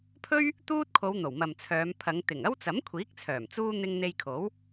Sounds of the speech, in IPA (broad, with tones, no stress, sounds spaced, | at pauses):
pʰ ɵ˥ ɥ | t̪ uː˥ t̚ kʰ o˨˧ w n̪ o˨˩ w m ɐ˨ m t͡sʰ œː˨˧ m pʰ ɐ˨˧ ŋ t̪ ɪ˨˩ ŋ ɐ˥ w t͡s ɐ˨˥ m kʷʰ iː˨˥ k̚ t͡sʰ œː˨˩ m t͡s uː˥ n̪ ɪ˧ ŋ n̪ e˧ j kʰ o˨˥ w